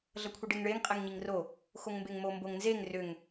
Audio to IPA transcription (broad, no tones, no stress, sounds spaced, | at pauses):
ɮ ʌ kʷʰ i ɖ e ŋ ɭ e ŋ qʼ e ŋ ɲ i ŋ r o | x o ŋ m b e ŋ m o m b o ŋ n z e ŋ r ʏ ŋ